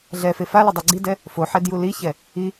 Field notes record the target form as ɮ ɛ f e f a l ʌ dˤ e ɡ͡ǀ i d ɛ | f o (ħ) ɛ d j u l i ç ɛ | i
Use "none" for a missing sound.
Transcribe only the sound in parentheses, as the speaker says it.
ħ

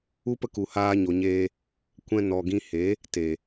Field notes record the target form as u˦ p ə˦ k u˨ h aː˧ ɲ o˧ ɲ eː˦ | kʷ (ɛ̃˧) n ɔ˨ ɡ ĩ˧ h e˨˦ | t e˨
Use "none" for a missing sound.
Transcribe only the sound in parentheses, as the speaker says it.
ɛ̃˧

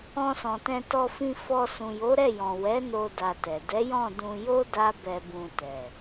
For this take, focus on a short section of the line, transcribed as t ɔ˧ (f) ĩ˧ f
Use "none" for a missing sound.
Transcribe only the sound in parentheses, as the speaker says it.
f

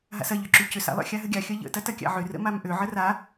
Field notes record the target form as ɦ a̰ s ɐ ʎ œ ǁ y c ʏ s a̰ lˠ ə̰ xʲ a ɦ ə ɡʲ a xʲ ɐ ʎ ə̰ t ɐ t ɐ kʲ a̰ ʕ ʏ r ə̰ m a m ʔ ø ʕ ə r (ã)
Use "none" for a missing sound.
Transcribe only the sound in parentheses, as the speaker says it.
a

